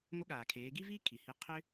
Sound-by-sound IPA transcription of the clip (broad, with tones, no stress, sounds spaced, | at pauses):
ŋʷ ə˧˥ ɠ aː˩ kʰ eː˩˧ ɡ i˥ v iː˥ kʰ i˩ h i˧ qʰ ʏ˧